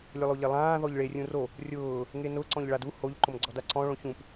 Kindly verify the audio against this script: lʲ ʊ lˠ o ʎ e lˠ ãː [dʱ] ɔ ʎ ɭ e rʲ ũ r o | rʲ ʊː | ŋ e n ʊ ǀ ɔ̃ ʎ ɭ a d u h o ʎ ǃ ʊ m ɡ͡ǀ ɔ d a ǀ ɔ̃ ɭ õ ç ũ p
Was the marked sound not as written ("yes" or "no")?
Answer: yes